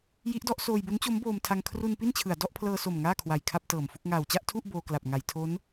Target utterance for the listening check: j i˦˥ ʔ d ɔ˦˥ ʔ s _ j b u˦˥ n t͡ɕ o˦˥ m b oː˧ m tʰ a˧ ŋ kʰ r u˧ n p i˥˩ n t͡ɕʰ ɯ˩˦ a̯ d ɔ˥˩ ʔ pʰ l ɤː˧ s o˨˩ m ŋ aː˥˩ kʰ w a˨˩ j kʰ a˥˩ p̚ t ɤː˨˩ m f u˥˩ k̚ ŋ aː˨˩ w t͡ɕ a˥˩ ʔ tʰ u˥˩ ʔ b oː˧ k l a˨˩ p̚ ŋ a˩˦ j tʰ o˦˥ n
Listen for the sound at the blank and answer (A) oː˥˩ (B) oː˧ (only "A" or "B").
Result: B